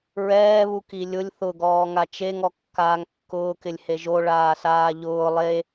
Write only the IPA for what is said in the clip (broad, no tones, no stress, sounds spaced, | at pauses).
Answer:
ɹ ɛː β u k i lʲ ʊ lʲ θ ʊ ɡ ɔː ŋ a t͡ʃ e ŋ ɔ kː aː ŋ kː ʊː k ɪ lʲ h e ʒ o ɭ aː s aː ʎ ʊː lˠ e